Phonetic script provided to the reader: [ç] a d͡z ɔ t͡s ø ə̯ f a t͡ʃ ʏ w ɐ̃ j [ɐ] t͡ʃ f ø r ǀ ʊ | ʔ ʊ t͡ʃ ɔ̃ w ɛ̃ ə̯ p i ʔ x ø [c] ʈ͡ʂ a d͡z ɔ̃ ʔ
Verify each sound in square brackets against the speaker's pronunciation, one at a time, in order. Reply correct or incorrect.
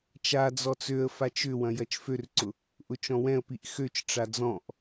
incorrect, correct, incorrect

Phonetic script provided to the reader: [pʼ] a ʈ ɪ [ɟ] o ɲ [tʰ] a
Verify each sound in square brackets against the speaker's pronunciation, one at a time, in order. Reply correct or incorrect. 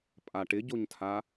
correct, correct, correct

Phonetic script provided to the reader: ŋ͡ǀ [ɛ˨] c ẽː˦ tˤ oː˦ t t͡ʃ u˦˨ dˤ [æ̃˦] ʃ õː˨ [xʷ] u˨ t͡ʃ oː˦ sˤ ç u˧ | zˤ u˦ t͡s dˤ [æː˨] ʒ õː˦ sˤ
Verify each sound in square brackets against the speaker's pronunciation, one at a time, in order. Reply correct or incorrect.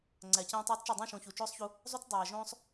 incorrect, correct, incorrect, correct

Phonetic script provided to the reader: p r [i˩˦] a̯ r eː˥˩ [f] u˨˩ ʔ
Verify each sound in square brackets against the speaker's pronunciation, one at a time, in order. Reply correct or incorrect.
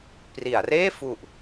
correct, correct

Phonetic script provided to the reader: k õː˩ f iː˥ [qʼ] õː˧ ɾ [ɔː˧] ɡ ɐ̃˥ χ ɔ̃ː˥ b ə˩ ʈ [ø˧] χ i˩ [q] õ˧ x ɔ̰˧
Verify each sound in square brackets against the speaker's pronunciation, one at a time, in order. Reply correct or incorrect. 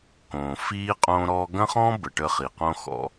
correct, correct, incorrect, correct

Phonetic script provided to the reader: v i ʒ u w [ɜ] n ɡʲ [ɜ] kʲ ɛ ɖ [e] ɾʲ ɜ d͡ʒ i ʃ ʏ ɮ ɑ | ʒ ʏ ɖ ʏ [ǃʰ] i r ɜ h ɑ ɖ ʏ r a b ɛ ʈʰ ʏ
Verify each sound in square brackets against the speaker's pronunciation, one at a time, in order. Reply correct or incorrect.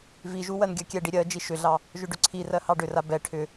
correct, correct, incorrect, incorrect

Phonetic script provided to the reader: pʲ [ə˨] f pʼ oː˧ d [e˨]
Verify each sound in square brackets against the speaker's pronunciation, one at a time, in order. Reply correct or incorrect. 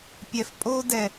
incorrect, incorrect

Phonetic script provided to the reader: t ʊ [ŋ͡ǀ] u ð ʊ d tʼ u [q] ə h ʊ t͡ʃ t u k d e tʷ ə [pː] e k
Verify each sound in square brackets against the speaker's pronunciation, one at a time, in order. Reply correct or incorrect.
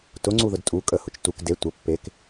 correct, incorrect, correct

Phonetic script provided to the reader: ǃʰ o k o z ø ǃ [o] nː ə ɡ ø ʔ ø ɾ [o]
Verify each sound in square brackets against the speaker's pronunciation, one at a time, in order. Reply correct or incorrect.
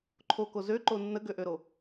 correct, correct

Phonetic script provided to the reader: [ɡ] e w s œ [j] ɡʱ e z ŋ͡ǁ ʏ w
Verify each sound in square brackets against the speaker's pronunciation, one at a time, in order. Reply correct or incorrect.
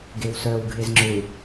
correct, incorrect

